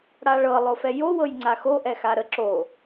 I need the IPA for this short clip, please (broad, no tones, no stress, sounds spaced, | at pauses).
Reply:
ɽ a ɭ ɤ lˠ o f ɛ j o w ɤ j ŋ͡ǀ a x o ʔ ɛ x a ɾ ə ǁ o